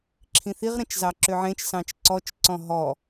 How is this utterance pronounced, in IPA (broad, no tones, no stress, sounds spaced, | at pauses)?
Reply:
ǁʰ ĩ θ i ʁ ɾ ẽ t͡ʃ z ɑ ǁ ø ʕ ẽ t͡ʃ s ɑ̃ t͡ʃ ǀ ɔ t͡ʃ ǀ ɔ̃ ɦ ɔ